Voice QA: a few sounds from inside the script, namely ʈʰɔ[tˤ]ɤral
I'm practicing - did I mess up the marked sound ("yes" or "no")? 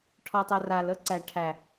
no